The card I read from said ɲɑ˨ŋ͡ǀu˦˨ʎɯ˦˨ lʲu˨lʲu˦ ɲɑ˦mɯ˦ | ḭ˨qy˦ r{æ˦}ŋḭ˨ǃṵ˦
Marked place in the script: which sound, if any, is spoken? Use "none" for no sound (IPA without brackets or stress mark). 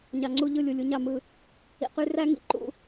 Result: æ˦